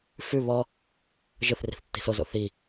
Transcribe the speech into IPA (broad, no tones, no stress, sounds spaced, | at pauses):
f ʉ β ɔ | ʒ ɯ θ r i̤ θ tː i̤ s o z o̰ θ i